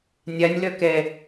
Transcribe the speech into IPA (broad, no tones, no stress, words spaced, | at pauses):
nʲanʲlœ kɛ